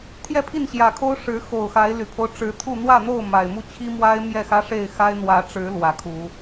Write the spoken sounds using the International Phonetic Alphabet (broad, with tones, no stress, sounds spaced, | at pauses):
t̪ʰ j ɛ˥˨ pʰ i˥˨ n ɕ j ä˨˩ kʰ o˦ ʊ̯ ʂ ɻ̩˨˦ x o˨˩ ʊ̯ x a˨˦ ɪ̯ l y˨˩ pʰ o˦ ʊ̯ ʈ͡ʂ ɻ̩˨˦ t̪ʰ u˥˨ n̪ w ä˥˨ n̪ o˥˨ ʊ̯ m a˨˩ ɪ̯ m u˥˨ t͡ɕʰ i˦ m w a˦ ɪ̯ m j ɛ˥˨ x ä˦ ʂ e˥˨ ɪ̯ x a˦ ɪ̯ n̪ w ä˨˦ ʈ͡ʂ ɻ̩˨˦ l w ä˨˦ kʰ u˨˦